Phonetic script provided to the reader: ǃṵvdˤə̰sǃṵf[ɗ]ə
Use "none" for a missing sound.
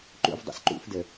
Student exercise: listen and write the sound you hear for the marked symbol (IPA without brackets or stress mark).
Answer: d